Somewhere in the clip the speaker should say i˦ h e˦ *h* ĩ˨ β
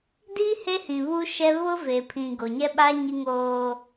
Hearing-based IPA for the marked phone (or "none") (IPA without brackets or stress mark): h